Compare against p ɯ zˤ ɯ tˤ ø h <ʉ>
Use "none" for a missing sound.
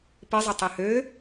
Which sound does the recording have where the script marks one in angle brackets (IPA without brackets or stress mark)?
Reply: ø